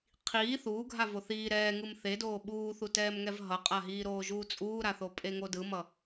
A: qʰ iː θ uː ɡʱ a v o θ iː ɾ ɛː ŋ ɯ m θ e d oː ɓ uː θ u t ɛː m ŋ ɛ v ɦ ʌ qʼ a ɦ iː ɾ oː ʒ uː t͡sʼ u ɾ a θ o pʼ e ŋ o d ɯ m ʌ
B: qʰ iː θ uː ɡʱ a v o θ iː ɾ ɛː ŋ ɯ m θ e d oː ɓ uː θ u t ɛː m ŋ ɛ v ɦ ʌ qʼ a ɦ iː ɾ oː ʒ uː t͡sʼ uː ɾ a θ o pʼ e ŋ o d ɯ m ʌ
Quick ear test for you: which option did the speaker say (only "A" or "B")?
B